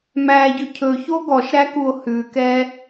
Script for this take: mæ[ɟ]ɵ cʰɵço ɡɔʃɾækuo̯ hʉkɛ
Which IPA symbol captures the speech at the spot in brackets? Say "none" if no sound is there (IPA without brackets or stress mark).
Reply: ɟ